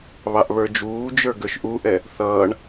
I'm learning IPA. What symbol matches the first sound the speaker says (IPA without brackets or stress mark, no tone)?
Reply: β